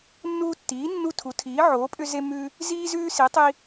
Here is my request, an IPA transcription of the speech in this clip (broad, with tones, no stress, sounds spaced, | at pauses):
nː uː˦ tː iː˩˥ nː u˦ tʰ u˩˥ tʰ iː˩˥ ʕ oː˩˥ pʼ ʏ˦ z e˦ m ʉ˦ | z iː˦ z ʉː˦ s i˩˥ tˤ i˦